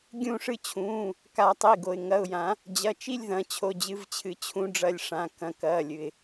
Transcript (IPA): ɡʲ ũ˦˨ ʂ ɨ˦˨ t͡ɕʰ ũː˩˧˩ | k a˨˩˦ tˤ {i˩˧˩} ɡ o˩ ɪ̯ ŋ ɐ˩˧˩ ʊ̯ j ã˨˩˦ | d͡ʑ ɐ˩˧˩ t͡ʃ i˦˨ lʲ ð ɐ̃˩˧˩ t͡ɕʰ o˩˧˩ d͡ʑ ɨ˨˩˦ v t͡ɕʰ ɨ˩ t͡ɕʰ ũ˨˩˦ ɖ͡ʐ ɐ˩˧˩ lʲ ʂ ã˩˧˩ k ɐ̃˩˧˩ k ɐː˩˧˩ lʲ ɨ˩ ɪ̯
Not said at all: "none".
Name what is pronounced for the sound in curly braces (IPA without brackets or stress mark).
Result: i˩˧˩